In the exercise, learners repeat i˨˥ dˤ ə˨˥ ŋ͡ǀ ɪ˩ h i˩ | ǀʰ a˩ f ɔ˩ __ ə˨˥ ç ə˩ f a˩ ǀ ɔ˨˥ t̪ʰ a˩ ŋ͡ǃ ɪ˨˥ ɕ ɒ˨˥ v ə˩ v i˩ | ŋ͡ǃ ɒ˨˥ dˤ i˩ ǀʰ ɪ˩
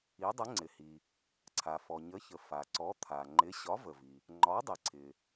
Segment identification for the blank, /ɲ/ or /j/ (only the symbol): ɲ